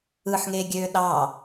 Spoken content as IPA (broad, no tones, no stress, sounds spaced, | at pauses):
ɯ ħ ŋ e ɡʲ øː ɗ ɑ